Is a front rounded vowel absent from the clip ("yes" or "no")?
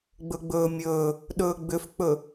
no